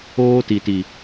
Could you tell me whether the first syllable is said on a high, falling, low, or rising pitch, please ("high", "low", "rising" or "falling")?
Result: high